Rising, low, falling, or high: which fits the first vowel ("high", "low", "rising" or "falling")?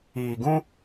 low